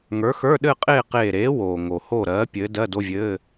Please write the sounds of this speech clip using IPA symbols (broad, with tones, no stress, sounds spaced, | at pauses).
ŋ ə˞˨˥ x ə˞˧˥˧ ɗ ɘː˥˧ qʼ eː˥˧ q eː˧˩ ɾ eː˨˥ w oː˩ ŋ o˩ h o˧˩ ɾ ɜː˨˥ pʲ ɘː˨˥ d ɜ˧˥˧ d o˧˥˧ vʲ ɘː˧˥˧